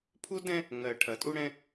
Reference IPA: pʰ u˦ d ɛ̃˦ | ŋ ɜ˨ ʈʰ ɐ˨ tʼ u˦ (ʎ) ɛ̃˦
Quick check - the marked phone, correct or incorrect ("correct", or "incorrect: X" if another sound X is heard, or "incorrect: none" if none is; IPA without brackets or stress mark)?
incorrect: ɽ